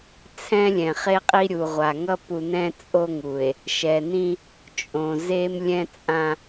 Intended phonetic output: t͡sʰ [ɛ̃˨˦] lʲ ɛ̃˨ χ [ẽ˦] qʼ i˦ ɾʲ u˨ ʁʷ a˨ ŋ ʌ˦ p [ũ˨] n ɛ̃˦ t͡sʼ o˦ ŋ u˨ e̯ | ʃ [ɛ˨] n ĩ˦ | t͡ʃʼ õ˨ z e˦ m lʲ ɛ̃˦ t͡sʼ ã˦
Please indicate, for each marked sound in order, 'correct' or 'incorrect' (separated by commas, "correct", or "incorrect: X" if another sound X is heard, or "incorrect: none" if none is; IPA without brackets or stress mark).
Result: incorrect: ɛ̃˦, incorrect: e˦, incorrect: u˨, correct